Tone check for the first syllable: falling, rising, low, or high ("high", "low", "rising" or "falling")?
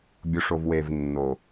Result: low